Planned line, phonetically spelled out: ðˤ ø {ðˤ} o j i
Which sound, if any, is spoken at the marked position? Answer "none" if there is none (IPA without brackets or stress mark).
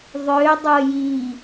dˤ